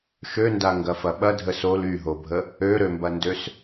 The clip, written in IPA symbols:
ʃ ø n d a ŋ ɡ ɐ f ɐ ɓ ɐ dʱ ə s o l y ɦ o bʱ ə | ø ɾ ø m b ɐ n d ø s

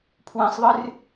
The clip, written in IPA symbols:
pʰ w ɛ̃ sˤ ðˤ ɨ r

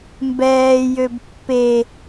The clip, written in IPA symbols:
m b ɛː j ø b pː e

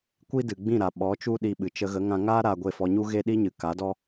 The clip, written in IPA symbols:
kʷ i˦ d ɨ˨ ɡ͡b ĩ˦˨ ɾ a˨ ɓ ɔ˨˦ t͡ʃ u˦ ɗ i˧ ɓ ɨ˨ t͡ʃ ə˧ ɣ ə˨˦ ŋ ã˧ ŋ aː˦ ɾ aː˧ ɡʷ e˦˨ f ɔ˧ ɲ u˦ ɣ e˦ ɗ i˦ ɲ ɨ˨ k a˨˦ d ɔ˦

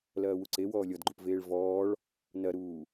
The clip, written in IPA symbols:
l ɐː w u ǀ e w ɔː lʲ ɔ d ɡ͡ǃ u p v eː ɭ v ɔː ɭ | n ɐ ɾ uː

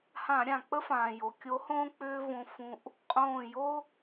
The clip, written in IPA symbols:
h ã˧˩˧ ɾʲ ã˩ k͡p ə˥ f ãː˩ j o˩ kʲ o˧˥ h õː˥ k͡p ʏː˥ v õ˧˥ f ũ˧˥ ʔ | qʼ õː˧˩ j o˥

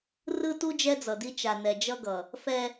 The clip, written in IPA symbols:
r ɯ˦ t u˦ d͡ʒ ɛ˦ d͡z ʌ˨ d i˦ t͡ʃ a˨ n ɛ˨ d͡ʒ ʌ˦ ɡ ʌ˨ | f ɛ˦

